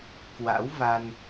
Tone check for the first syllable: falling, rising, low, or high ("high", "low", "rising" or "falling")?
rising